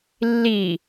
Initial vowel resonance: oral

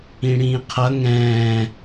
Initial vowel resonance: nasal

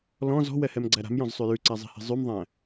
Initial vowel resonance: nasal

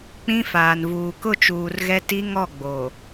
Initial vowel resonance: nasal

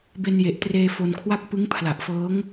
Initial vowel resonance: oral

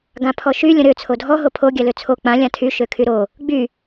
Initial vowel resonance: nasal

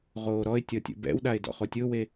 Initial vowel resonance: oral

